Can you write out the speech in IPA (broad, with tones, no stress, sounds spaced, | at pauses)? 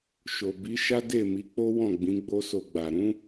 ʃ o˨ b i˨˦ ʃ a˦ d e˦˨ m i˨˦ k͡p o˦ w ɔ̃˦˨ ɡ͡b ĩ˨˦ ɡ͡b o˦ s o˧ ɡ͡b a˨ ɾ ũ˨˦